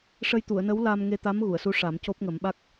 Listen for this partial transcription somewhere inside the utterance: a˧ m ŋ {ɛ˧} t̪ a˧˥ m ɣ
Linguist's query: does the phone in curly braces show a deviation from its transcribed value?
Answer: yes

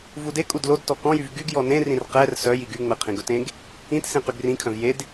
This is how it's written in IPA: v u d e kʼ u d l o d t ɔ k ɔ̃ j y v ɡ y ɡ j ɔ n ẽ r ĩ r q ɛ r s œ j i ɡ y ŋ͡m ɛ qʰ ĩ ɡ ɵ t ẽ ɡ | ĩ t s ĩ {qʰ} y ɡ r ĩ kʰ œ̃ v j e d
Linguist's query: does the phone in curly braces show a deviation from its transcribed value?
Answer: yes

